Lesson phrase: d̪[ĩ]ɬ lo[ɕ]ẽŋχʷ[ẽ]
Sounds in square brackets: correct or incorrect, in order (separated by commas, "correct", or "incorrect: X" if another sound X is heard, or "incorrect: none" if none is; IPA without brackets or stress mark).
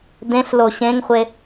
incorrect: ẽ, correct, incorrect: e